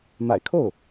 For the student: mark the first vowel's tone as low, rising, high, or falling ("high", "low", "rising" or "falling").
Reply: low